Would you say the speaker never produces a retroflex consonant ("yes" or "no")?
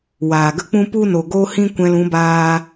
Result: yes